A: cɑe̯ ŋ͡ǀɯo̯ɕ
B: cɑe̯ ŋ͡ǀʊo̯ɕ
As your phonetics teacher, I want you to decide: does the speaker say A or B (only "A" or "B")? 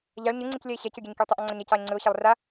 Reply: A